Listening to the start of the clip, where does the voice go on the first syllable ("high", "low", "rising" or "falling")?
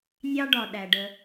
high